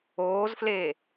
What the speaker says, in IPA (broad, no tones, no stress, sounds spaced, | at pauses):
oː z f l e